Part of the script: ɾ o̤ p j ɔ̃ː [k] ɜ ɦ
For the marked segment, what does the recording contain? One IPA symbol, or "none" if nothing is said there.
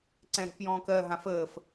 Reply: k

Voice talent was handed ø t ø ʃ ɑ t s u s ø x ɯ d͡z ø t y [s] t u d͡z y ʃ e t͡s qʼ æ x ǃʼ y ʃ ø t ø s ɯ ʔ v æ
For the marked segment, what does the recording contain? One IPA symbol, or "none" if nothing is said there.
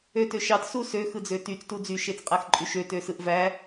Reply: t͡s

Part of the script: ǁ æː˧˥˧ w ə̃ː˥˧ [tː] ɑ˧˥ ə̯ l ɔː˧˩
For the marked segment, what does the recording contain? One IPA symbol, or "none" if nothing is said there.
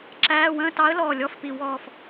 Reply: t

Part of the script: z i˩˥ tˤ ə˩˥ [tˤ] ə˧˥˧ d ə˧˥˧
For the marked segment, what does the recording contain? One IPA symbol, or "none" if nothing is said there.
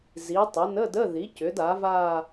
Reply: n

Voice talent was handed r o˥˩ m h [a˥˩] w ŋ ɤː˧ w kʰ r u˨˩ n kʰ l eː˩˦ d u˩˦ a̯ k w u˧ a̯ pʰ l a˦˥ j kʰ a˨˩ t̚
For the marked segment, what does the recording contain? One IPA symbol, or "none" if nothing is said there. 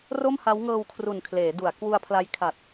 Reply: a˦˥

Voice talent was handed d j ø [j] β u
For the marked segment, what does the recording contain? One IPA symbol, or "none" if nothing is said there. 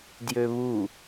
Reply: none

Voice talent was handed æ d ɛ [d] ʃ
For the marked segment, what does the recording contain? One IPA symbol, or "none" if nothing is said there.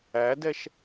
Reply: none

